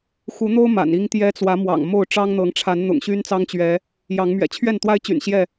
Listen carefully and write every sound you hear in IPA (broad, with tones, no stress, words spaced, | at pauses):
xu˨˦n̪o˦ʊ̯ ma̰˨˩ni˦ŋt̪jɛ˦ t͡swä˨˦ mwɑ̰˨˩ŋmo˥˨ʊ̯ ʈ͡ʂɑ˦ŋn̪ɤ˨˦ŋʈ͡ʂʰa˨˦n n̪ʊ̰˨˩ŋɕy˦nt͡sɑ˦ŋt͡ɕɥɛ˨˦ | jɑ˨˦ŋmɥɛ̰˨˩ t͡ɕʰɥɛ˥˨nt̪wa˦ɪ̯t͡ɕy̰˨˩n ɕjɛ˥˨